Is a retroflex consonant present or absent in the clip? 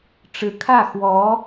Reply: present